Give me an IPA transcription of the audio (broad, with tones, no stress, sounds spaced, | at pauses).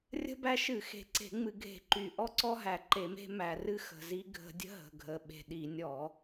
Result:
rʲ ə̤˦ b æ˦ ʃ ɨ˧˩˧ x e̤˨˩ ǀ e̤˧˩˧ ŋ͡m ɨ˧˩˧ ɡʱ e̤˧˩˧ ǃ y˨˩ ʔ ɔ˦ ǀ ɔ˦ ɦ æ˨˩ ǃ e˧˩˧ m e̤˦ m æ˨˩ r ɨ˦ x ə̤˨˩ z i˦ ɡʱ ə̤˧˩˧ dʲ ə̤˦ ɦ ə̤˨˩ ɡʱ ə˨˩ ɓ e̤˨˩ ɗ i˧˩˧ nʲ ɔ˧˩˧